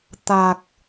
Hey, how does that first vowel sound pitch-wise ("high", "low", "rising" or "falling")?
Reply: low